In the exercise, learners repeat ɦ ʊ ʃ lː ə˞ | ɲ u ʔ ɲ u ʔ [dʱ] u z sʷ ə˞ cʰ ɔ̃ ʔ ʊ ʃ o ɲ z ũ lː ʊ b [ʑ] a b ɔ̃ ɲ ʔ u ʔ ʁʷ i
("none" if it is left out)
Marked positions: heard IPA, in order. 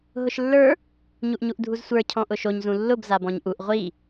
dʱ, z

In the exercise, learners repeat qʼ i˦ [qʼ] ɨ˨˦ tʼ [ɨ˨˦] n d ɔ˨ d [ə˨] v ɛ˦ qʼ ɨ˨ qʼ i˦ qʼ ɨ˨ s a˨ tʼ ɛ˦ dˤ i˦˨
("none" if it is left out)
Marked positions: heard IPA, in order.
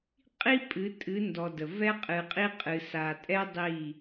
pʼ, ɨ˨˦, ə˨

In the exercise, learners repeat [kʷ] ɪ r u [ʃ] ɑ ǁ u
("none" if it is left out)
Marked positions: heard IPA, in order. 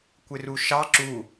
kʷ, ʃ

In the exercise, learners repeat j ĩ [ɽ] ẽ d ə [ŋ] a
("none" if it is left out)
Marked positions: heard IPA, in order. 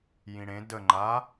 ɽ, ŋ͡ǃ

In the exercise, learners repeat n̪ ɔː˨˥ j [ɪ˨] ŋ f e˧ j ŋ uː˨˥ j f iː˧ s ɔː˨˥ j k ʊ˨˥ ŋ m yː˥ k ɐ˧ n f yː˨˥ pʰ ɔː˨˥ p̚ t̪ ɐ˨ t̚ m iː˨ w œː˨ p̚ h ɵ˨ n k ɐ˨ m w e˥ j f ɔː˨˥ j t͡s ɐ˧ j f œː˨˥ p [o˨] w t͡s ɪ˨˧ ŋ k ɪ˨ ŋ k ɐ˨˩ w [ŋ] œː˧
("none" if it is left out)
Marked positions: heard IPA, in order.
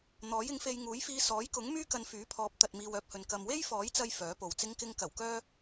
ɪ˨˥, o˨, k

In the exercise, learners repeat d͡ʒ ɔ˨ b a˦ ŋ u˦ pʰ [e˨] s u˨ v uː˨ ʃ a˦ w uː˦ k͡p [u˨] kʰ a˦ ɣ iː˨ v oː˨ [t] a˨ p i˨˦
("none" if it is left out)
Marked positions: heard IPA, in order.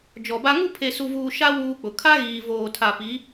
e˨, ʊ˨, tʰ

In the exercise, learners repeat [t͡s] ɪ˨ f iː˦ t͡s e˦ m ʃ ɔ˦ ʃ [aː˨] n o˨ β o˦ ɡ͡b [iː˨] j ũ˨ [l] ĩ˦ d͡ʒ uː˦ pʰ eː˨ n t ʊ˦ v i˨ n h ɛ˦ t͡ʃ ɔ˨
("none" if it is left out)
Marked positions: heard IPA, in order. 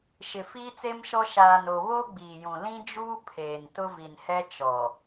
ʃ, aː˨, iː˨, l

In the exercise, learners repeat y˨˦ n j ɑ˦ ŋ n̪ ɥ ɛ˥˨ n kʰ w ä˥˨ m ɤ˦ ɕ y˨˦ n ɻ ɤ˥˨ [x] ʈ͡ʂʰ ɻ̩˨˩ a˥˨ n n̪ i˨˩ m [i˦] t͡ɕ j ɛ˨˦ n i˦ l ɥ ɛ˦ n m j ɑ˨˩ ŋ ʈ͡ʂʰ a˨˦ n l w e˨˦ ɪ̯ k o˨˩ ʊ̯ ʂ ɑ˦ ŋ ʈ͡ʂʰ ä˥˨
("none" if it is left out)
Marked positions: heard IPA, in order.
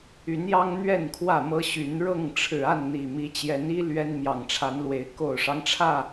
ŋ, i˨˦

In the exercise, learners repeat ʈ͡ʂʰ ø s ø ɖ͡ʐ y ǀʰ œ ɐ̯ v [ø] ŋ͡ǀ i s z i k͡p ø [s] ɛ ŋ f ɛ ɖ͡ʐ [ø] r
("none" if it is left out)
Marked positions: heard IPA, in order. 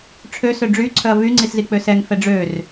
y, s, ø

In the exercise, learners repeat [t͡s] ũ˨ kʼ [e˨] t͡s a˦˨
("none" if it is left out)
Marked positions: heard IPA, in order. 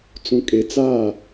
t͡s, e˨

